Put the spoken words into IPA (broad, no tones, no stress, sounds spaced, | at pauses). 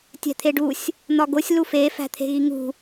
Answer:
tʲ æ̤ t̪ʰ e ɖ u sʲ | n̪ ɒ ɡ o sʲ l u f e f æ̤ t̪ʰ e̤ ɣ i ŋ ṳ